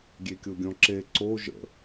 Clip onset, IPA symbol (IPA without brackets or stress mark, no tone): ɡʲ